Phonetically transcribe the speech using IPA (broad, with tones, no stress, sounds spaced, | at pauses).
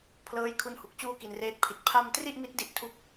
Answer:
pʰ l ɤː˦˥ j kʰ u˦˥ n h u˨˩ k̚ t͡ɕ uː˥˩ k i˧ n r eː˦˥ t̚ pʰ i˨˩ t̚ pʰ a˥˩ m t r i˥˩ ʔ m i˦˥ t̚ d i˥˩ ʔ tʰ u˥˩ k̚